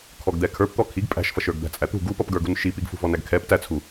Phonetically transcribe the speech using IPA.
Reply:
kʰ ɔ ɡ d̪ ɛ kʰ ə˞ p t̪ ɔ kʰ i ɡ pʼ æ̤ ʃ f ʌ ʃ ə˞ ɡ d̪ æ̤ t͡sʼ æ t̪ ṳ ɡ u p ʌ p ɡ ə˞ ɡ ṳ n ʃ i p i ɡ f ṳ v ɔ n æ ɡ kʰ ɛ p t æ t͡sʰ u

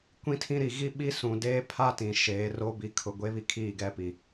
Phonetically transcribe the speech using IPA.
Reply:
kʷ ĩ˦ tʰ ĩ˦ ɾ i˨ ɣ i˦ ɓ i˦ s ũ˨ d eː˦ pʰ a˦ t ĩ˨ ʃ eː˨˦ r o˦ b i˨ kʰ ʊ˨ ɡʷ e˦ β i˦ kʰ iː˦˨ ɡ ɛ˦ p i˨

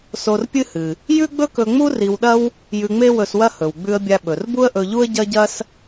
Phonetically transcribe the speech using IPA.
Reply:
s o˧ r pʲ ɨ˥ h ɨ˩ | j ʉ˥ ɡ͡b ɵ˥ k ɵ˧ ŋ͡m u˥ r i˧ w ɗ ɐ˥ w | j ʉ˧ ŋ͡m e˥ w ɵ˧ s w ɐ˥ h ɵ˩ w ɡ͡b ʉ˧ ə̯ bʲ a˧ ɓ ɵ˩ r b u˥ ə̯ ʔ ɵ˧ ʎ u˥ ə̯ ɟ ɐ˥ ɟ ɐ˥ s

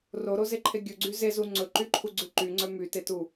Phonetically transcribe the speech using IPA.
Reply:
r o ɾ o z e ǃʰ e ɡʲ ɵ ɡ͡ǀ y z e z u ŋ͡ǀ ɵ ǃ y ǃʰ u ɡ͡ǀ ʉ ǃ y ŋ͡ǀ œ m y t e t u

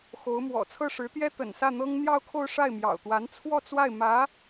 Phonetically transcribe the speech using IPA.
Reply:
x o˧˥ ʊ̯ m w ɔ̰˨˩ t͡sʰ ɤ˥˩ ʂ ɻ̩˧˥ t̪ j ɛ˥ t̪ ə̰˨˩ n s ä˥˩ n̪ ɤ˥ ŋ n̪ j ɑ˥˧ ʊ̯ kʰ o˥˧ ʊ̯ ʂ a˥˩ ɪ̯ m j ɑ̰˨˩ ʊ̯ t̪ w a˧˥ n t͡sʰ w ɔ˥˧ t͡s w a˥˩ ɪ̯ m ä˧˥

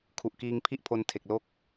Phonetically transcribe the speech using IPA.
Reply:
kʰ u˨˩ ʔ k iː˧ ŋ pʰ i˥˩ ʔ pʰ o˦˥ n tʰ e˨˩ k̚ l o˥˩ k̚

